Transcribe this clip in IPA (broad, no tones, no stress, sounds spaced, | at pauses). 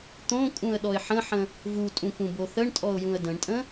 t̪ õ kʼ ũ ə̯ ɗ ɔ ɪ̯ ħ ə̃ ħ ə̃ | v u tʼ ũ k ũ b o θ ə ɳ tʼ ɔ ʊ̯ j ũ ə̯ d ə̃ ɳ tʼ ə̃